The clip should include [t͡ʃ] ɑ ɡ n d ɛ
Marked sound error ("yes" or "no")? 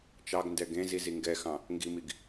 no